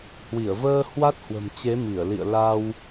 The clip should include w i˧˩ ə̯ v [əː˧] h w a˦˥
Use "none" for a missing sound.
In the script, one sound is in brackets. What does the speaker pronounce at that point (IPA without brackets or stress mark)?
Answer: əː˧